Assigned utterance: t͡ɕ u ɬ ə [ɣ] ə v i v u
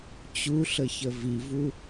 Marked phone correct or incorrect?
incorrect